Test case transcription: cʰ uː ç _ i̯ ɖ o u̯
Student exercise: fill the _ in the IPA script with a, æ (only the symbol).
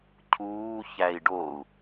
æ